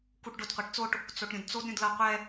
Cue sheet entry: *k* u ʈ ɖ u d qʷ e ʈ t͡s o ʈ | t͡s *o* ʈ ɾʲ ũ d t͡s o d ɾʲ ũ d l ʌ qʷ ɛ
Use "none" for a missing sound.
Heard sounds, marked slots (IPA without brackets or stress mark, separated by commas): k, o